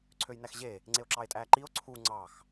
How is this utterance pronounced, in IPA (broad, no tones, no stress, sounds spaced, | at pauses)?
ǀʰ ø j n æ x ʑ e | ŋ͡ǀ e o̯ ǁ ɑ e̯ tʼ æ ǃ i o̯ ǀʰ u ŋ͡ǀ ɑ x